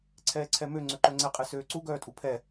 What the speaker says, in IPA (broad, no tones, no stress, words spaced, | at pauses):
ǀʰɛːǀʰɛmø ŋ͡ǀøǃœŋ͡ǀɛ qʼɛsøːǀu ɡœːtʼupʰɛ